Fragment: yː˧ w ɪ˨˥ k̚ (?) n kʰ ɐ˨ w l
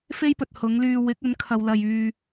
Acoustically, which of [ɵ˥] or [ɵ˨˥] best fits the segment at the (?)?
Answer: ɵ˨˥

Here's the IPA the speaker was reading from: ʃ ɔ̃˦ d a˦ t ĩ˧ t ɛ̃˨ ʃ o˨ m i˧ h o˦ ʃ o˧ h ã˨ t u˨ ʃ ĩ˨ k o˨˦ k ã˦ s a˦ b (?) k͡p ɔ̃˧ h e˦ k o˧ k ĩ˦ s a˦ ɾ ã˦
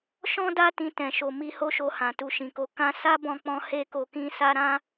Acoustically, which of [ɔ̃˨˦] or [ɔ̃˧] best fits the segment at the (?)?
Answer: ɔ̃˧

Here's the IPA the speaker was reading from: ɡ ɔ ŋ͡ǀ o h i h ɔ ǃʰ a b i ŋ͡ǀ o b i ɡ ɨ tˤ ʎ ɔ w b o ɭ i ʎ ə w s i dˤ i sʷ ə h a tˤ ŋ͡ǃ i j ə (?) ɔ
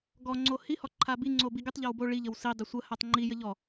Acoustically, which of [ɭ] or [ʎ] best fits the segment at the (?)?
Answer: ʎ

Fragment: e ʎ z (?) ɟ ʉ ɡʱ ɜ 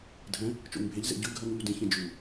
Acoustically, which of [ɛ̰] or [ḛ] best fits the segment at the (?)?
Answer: ḛ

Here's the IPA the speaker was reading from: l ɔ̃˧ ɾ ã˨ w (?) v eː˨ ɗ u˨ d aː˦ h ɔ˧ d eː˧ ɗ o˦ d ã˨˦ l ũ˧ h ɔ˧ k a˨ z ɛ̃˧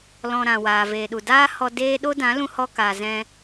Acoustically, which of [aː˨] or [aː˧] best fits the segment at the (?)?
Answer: aː˨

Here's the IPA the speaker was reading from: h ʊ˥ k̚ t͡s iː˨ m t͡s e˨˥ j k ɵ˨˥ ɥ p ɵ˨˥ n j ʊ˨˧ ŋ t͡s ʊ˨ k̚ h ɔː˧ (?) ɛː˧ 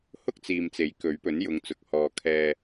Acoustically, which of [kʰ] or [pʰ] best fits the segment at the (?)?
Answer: kʰ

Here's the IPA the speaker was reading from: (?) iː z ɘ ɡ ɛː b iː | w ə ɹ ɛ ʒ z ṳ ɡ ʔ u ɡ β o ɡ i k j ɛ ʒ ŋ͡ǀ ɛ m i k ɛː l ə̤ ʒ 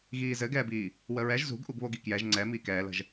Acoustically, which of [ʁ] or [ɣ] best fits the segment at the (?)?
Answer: ɣ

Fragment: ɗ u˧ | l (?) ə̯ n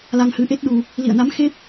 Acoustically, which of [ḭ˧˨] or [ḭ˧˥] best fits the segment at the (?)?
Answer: ḭ˧˨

